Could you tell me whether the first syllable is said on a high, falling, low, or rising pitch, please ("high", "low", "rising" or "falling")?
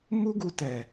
high